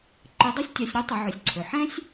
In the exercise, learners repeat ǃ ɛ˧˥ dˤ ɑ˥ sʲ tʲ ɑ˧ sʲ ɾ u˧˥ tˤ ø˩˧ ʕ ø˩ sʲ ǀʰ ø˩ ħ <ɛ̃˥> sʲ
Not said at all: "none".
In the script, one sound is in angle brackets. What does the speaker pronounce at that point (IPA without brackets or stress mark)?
ɛ̃˥